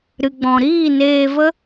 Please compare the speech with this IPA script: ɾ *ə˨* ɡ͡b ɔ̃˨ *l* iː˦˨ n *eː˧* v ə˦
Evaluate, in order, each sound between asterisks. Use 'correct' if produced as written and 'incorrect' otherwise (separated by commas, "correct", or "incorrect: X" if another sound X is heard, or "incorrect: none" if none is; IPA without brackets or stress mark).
incorrect: ɨ˨, incorrect: ɾ, correct